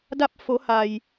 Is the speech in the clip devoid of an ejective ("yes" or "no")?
yes